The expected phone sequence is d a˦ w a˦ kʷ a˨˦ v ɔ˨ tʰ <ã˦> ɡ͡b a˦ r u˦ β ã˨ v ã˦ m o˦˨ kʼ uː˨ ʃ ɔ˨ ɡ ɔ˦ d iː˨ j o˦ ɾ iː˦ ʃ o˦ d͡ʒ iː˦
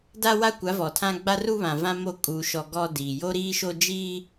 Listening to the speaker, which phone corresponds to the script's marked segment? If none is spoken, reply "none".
ã˦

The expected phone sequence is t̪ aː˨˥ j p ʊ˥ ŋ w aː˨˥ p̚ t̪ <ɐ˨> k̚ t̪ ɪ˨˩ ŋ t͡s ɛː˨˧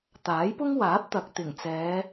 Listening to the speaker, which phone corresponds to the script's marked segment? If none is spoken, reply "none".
ɐ˨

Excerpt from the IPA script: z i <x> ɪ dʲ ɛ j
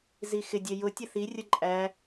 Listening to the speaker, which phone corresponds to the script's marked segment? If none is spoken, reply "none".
x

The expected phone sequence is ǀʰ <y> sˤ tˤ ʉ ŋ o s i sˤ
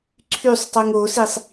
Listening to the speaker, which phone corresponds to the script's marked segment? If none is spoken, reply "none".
y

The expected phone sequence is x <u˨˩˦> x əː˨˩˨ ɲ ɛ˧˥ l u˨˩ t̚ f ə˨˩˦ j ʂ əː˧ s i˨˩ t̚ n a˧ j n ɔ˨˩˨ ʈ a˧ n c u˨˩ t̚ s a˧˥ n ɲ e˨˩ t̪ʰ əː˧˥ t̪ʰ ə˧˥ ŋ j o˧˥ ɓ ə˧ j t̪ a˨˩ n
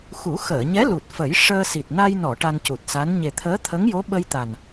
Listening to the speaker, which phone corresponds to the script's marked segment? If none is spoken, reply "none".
u˨˩˦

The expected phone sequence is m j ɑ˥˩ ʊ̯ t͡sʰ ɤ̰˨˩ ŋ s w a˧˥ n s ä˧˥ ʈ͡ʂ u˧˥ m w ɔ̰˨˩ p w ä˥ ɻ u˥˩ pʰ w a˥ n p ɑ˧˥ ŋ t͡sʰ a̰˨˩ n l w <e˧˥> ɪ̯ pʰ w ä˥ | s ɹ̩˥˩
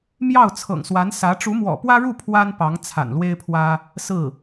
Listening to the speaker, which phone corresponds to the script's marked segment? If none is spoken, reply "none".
e˥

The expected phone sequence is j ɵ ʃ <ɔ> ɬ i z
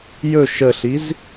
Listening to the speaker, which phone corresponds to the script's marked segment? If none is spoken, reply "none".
ə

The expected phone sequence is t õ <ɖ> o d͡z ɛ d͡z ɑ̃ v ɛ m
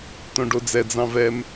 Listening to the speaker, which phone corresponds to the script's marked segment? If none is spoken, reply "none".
ɖ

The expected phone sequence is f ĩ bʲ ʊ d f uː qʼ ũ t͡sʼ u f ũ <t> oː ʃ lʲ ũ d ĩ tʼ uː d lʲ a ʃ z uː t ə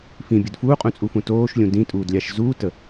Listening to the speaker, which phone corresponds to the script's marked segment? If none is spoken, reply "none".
t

